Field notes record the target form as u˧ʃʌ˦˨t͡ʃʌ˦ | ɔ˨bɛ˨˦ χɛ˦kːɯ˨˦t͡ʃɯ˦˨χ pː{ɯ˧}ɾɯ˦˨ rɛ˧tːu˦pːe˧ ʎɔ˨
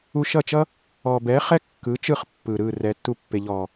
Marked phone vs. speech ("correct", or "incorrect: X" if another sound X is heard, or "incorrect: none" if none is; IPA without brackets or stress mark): incorrect: ɯ˨